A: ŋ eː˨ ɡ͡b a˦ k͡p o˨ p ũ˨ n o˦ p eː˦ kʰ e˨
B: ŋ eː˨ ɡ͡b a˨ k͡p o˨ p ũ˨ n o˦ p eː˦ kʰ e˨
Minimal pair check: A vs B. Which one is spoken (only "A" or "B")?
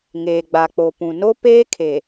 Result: B